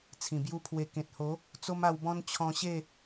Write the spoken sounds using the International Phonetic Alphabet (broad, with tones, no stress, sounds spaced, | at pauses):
t͡sʰ ĩ˨˩ b j u˦ pʰ w e˧ k ẽ˨ t̚ h o˨˦ | t͡s o˦ m a˧ w b ɔ̃˦ n t͡ɕʰ ɔ̃˧ ɕ e˥˧